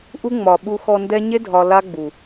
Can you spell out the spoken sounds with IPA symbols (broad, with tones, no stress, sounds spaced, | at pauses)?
ʔ u˦ ŋ͡m ɒ˨ ɓ u˧ x ɔ˧ n d ɛ˦ ɲ e˦ dʱ ɒ˧ l a˦ ɡ͡b u˨